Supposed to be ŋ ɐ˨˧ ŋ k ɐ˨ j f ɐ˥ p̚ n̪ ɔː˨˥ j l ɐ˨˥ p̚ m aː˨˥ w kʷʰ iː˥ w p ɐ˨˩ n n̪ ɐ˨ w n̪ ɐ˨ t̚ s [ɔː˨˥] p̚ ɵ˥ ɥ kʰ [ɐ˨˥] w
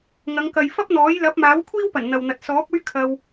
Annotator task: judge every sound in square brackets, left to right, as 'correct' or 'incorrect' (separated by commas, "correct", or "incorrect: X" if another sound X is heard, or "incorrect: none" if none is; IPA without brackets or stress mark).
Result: correct, incorrect: ɐ˧